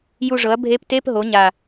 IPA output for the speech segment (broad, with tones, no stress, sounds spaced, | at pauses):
j u˦˨ ʐ ɤ˩˥ ɐ̯ bʱ e˧˥ p t e˧˥˧ p ɦ o˩˥ ɲ a˨˩